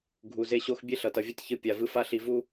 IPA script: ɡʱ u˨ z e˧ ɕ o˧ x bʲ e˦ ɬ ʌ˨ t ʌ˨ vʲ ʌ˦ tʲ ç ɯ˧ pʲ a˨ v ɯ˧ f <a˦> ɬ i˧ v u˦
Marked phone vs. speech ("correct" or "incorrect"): correct